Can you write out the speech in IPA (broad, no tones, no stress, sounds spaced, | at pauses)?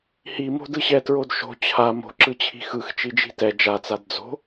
h i m o̤ d ɯ ɕ ɛ t ɹ o d ʃ o̤ t͡ɕʰ a m o̤ ǁ ɯ t͡ɕʰ i̤ x ɯ x t͡ʃ i d͡ʒ i̤ t ɛ d͡ʒ a t͡s a d d͡z o̤